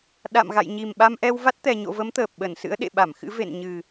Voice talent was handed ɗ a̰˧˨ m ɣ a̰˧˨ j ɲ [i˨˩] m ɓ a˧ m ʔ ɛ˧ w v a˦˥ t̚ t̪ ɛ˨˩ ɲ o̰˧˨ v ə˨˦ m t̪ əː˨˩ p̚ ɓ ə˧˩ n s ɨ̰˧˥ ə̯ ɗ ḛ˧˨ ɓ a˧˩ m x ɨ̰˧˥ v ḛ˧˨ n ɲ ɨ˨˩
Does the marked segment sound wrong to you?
no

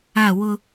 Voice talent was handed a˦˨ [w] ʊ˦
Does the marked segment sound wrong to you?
no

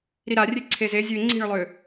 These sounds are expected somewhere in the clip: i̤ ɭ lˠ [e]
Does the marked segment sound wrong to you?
yes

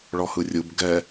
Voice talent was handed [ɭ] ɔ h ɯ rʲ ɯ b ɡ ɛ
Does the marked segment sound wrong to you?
no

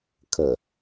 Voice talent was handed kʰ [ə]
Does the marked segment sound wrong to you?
no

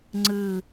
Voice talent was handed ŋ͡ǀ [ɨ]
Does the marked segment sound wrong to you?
no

